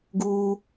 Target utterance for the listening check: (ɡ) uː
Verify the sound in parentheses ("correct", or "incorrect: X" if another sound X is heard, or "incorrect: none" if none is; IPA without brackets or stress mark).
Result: correct